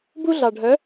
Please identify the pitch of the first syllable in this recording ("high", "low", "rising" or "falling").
high